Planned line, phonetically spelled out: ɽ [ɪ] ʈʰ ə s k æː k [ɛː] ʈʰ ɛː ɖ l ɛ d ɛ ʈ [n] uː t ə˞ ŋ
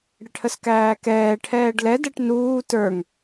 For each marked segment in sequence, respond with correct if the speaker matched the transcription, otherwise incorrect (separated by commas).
correct, correct, correct